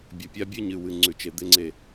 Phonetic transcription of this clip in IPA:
bʲɵ˨pʲa˦bʲɨ˦ ɲɨ˨wɨ˨ ŋ͡ǀʉ˨t͡ʃe˨ d̪e˦ŋ͡ǀe˦

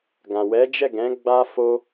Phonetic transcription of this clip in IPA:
ɡã˨ wɛ˨˦d͡ʒɛ˦˨ɡɛ̃˨˦ ɡ͡ba˧ fo˧

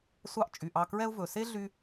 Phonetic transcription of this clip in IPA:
sʷɑ˦ʔt͡ʃʼy˩ʔɑ˨ kɹɛ˥ʊ̯ vɵ˩se˦ ɮy˦

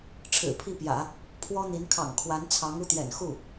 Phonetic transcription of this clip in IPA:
ʈ͡ʂʰɻ̩˨˩pʰi˥˩pjä̰˨˩˦ | pʰwɔ˥n̪i˧˥n kʰɑ̰˨˩ŋkʰwa˧˥nt͡sʰɑ˧˥ŋ u˥˩t̪jɛ̰˨˩nxu˥˩

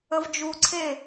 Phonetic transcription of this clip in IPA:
əvd͡ʒuǀʰe

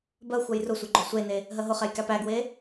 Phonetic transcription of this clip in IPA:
bɜ xʷɜjrʊsʷe ɡ͡ǃosʷene | ɦɜɦʊχɛj kæpæɡwe

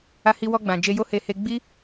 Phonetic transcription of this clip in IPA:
a˧hi˧wɔ˧ɡ͡bã˨ d͡ʒe˧jo˦he˧ he˧ ɡ͡bi˦

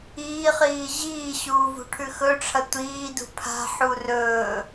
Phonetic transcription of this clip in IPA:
iːχiː ʑiːɕuːvṳ ʈʰʉxɵʈ͡ʂʰɐ tʷiːdṳ pʰa̤ ħurɵː

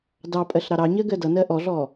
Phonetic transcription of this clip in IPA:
dɑpʼɜɬ ɾɑɾɑɲɜ ɡɜdʌnɜ ʔɔɮɔ

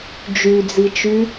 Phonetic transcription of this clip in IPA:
d͡ʒyd͡zit͡ʃy

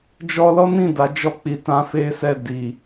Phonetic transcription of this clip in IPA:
d͡ʒɔ˦ lɔ˦nĩ˦˨ da˨˦d͡ʒɔ˦˨k͡pi˧tã˧ fe˦sɛ˦˨di˨

